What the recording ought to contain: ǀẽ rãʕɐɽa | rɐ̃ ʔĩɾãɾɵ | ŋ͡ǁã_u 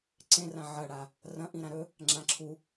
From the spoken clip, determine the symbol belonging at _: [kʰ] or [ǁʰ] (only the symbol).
ǁʰ